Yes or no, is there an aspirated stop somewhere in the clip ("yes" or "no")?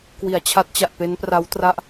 yes